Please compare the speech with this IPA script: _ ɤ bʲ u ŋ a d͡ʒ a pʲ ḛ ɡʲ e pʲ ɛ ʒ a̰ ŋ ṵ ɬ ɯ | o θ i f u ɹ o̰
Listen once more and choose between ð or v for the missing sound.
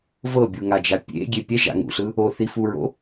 v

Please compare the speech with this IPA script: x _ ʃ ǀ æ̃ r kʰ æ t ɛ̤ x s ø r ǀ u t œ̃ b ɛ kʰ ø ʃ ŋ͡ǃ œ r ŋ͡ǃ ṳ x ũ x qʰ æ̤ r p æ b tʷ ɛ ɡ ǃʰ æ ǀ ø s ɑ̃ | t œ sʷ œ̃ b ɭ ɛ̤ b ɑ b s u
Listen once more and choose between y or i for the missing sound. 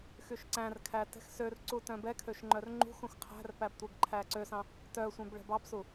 y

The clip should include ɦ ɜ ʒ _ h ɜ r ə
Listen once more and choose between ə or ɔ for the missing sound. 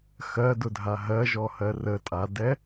ɔ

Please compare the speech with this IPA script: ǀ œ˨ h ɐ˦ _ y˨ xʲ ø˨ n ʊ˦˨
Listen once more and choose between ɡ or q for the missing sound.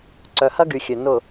ɡ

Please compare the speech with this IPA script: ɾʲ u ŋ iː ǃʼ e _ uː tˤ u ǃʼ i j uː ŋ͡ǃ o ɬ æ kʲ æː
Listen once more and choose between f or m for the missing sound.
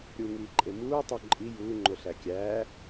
m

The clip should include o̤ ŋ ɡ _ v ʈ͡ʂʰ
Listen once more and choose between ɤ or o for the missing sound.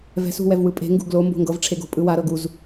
ɤ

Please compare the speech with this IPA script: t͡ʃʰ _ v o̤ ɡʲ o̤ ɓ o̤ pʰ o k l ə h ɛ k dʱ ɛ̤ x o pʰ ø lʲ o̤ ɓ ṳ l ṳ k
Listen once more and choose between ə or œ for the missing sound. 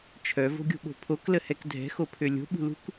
œ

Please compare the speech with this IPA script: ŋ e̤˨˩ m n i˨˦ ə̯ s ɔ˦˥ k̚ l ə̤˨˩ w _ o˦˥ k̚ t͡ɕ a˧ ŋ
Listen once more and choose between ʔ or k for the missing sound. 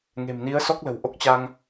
ʔ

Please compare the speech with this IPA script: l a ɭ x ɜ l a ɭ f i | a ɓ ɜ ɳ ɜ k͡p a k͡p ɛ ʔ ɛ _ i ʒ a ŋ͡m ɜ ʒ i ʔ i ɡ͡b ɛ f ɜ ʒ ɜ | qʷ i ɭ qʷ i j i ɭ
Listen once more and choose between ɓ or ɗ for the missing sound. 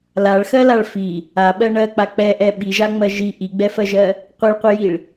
ɓ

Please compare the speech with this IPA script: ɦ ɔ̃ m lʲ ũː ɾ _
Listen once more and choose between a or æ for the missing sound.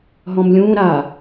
a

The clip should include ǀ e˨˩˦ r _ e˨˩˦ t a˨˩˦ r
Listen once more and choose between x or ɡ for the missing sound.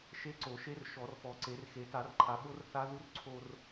x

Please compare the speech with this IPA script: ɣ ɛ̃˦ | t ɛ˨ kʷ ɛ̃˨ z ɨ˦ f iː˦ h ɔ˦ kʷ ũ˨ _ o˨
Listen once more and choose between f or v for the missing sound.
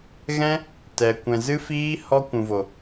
v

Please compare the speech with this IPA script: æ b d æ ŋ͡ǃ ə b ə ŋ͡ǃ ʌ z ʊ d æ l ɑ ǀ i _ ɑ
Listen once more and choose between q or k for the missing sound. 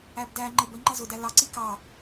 k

